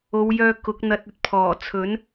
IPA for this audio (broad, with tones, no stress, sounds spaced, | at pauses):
o˨˧ w j œː˧ k ʊ˨˥ k̚ n̪ ɐ˧ t̚ ɵ˧ t̚ pʰ ɔː˨˩ t͡sʰ ɵ˨˥ n